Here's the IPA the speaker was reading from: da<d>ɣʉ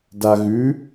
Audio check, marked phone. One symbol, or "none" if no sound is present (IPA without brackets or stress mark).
none